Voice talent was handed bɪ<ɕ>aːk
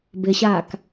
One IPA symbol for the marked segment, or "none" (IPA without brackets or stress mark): ɕ